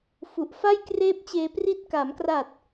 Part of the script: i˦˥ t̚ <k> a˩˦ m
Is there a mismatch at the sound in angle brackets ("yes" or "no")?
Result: no